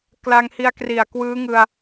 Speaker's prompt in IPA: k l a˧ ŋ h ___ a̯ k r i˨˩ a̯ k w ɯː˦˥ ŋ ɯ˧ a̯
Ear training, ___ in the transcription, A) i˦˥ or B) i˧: B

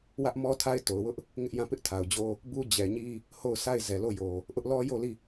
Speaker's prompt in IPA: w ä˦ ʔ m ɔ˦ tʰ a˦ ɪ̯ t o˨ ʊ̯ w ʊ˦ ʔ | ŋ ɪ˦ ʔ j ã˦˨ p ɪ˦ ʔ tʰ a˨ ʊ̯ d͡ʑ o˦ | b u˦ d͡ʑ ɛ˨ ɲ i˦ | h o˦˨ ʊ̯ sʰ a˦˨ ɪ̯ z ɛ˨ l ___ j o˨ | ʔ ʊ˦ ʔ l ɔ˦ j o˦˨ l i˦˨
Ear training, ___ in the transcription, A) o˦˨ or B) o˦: A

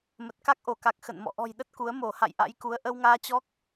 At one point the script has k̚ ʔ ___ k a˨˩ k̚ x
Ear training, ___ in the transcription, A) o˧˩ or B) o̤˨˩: A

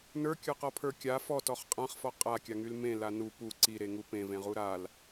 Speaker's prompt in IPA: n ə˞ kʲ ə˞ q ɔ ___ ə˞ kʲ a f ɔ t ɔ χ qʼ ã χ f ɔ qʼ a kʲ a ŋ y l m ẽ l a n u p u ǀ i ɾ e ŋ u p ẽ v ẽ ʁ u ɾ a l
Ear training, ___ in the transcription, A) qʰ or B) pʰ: B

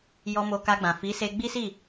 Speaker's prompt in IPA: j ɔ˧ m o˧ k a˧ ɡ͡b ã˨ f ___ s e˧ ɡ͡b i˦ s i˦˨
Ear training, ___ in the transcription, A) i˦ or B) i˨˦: B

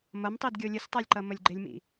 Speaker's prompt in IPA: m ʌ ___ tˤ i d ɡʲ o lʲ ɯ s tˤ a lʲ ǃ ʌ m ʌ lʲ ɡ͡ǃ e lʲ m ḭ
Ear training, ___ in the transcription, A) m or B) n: A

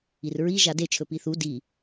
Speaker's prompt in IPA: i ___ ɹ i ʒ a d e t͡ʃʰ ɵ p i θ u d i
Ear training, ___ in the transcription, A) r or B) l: A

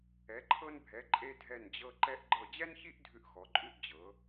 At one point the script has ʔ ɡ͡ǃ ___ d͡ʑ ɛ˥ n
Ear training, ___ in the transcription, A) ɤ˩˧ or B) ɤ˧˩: B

